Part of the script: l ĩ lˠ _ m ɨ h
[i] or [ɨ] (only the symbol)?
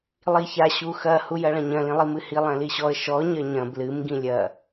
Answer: i